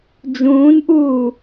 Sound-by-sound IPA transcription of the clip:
d͡ʒ ũː n ʔ uː

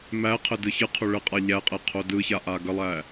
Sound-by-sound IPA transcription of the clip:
m æ qʰ ə d ɯ ç ɯ qʰ o ɭ ə qʼ a ʎ æ qʼ ɛ qʰ o d ɯ ç a ʔ a ɡ ə lˠ æ

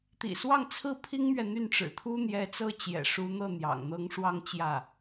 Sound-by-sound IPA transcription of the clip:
t̪ ḭ˨˩ s w ɑ˥˧ ŋ t͡sʰ ɹ̩˥˩ pʰ i˥ ŋ m ɥ ɛ˨ n̪ y˥˩ n ʈ͡ʂ ɻ̩˨˩ t̪ʰ u˥ n̪ j ɛ˧˥ t͡s ɤ˥ t͡ɕ j ɛ̰˨˩ ʂ u˧˥ n̪ ɤ˥˩ n̪ j ɑ̰˨˩ ŋ n̪ ɤ˧˥ ŋ ʂ w ɑ˥˧ ŋ t͡ɕ j ä˥˩

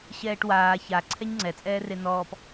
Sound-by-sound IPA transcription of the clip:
ɕ ɛː ʈ w aː ç a ǀʰ ɛ ɲ ŋ͡ǀ ɛ t͡sʼ ɛː r e n ɔː p

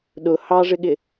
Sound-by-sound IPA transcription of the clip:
ɗ ʊ h ɑ ʐ ɪ ɠ ɪ

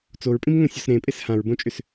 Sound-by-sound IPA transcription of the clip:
t͡s o ɹ pʼ ĩ m ŋ õ sʲ ɔ s ɾ ẽ pʼ e s h ã ɹ b õ t͡ʃʼ ʏ s

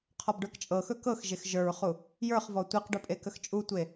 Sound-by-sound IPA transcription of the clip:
qʰ ɔ b ɖ ə˞ k t͡ʃʼ ɤ x ɵ k ɤ x ʒ e x ʒ ə˞ ɹ χ u | j ə˞ χ v ɔ tʷ i q ɖ ɵ pʼ e k ə x t͡ʃʼ u tʷ e

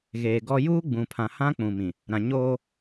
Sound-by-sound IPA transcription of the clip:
ɣ eː˨ ɡ ɔ˦ j uː˦ ɡ͡b ũ˨ pʰ ã˨ h ã˦ k͡p ũ˨ m ĩ˨ | ɾ ã˨ ɲ oː˦

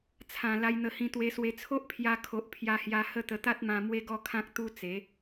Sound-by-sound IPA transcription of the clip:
t͡sʰ ã˨˩ l a˧ j n̪ ə˧ h ĩ˧ t̪ w e˧ s w e˧ t͡sʰ o˦ ʔ pʰ j a˧ kʰ o˨ ʔ pʰ j a˧ h j a˧ h ə˦ t̪ ə˧ t̪ a˦ t̚ m ã˧ m w e˦ ɡ ɔ˥˧ kʰ ã˦ k̚ t̪ u˦ t͡s e˨˦

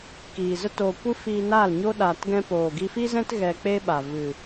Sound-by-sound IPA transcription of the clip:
k iː˨ z ə˦ t oː˧ kʷ ɨ˦ f iː˧ n aː˦˨ l ɲ o˦ ɗ aː˧ t ɡ ɛ̃˦ p oː˨ ɡ i˧ f i˦ z ɛ̃˦ t ɣ ɛ˧ k͡p e˦ ɓ a˨ v ɨ˨

